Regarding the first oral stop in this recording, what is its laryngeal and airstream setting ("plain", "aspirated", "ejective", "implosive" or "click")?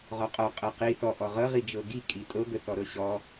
ejective